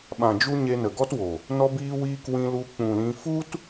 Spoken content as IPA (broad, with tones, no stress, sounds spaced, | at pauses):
ɓ ã˨ d͡ʒ u˧ ɲ e˧ n ə˨ ɡ ɔ˦ t w o˨ | n ɔ˧ b iː˧ w iː˧ k w ĩ˧ l u˧ k͡p ũ˨ l ĩ˧ f u˦ t